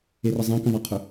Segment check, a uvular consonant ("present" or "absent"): present